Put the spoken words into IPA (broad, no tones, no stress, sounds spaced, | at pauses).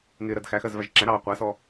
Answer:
ŋ ɪː ɾ ɜ d x æ x ɜ z v æ ʒ ǁ æ̃ ɾ ɑː qʷ æ s ɔ